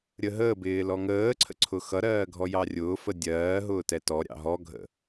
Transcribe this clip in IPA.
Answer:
ɾʲ ə ɦ əː b ɪː l ɔ ŋ əː ǀʰ ə̰ ǀʰ ʊ x ʌ ɾ ɜː ɡʱ ɔ j ɑ rʲ ʊː f ə dʲ ɜː ɦ ʊː t ɛ t ɔ ɾʲ ɑ̰ ɦ ɔ ɡʱ ə̰

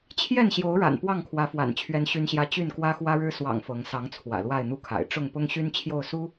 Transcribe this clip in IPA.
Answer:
t͡ɕʰ j ɛ˥˨ n ɕ j o˨˦ ʊ̯ ɻ a̰˨˩ n p w ɑ˥˨ ŋ kʰ w ä˨˦ f w a̰˨˩ n t͡ɕʰ ɥ ɛ˦ n ɕ y˦ n ɕ j ä˦ t͡ɕ y˥˨ n k w ä˦ x w ä˦ ɻ ɻ̩˦ s w ɑ̰˨˩ ŋ f ɤ˨˦ ŋ s ɑ˨˦ ŋ t͡sʰ w ä̰˨˩ l w a˥˨ ɪ̯ n̪ u˦ kʰ a̰˨˩ ɪ̯ ʈ͡ʂ ʊ˥˨ ŋ p ʊ˦ ŋ ɕ y˦ n t͡ɕʰ j o˥˨ ʊ̯ s u˦

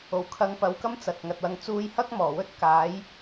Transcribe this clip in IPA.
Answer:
o˨˩ w kʰ ɐ˨˥ ŋ p ɐ˨˥ w k ɐ˥ m t͡s ɐ˨ t̚ ŋ ɐ˨ t̚ w ɐ˧ ŋ t͡s uː˧ j h ɐ˥ k̚ m ɔː˨˩ w ɵ˥ t̚ k aː˨˥ j

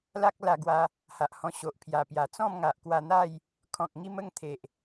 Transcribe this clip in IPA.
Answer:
l a˦ k̚ l a˧ ɡ w a˧ | h a˨ ʔ h ɔ̃˧ ɕ o˨ ʔ pʰ j a˨˩ p j a˨˩ t͡s ɔ̃˥˧ m ŋ a˨ ʔ k w a˧ n̪ a˥˧ j | kʰ ɔ̃˨ k̚ ŋ i˦ m ə˥˧ ŋ t̪ʰ e˨ ʔ

